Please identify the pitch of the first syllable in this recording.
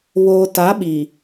low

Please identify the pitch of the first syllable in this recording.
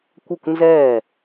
falling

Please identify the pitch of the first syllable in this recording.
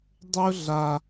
high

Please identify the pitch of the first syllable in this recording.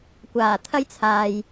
low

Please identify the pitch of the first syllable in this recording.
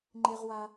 high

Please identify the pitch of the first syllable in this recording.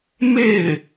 falling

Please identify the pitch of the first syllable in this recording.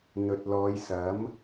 low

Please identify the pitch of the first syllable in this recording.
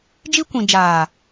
high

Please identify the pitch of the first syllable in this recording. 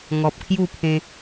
low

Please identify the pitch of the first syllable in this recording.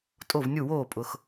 falling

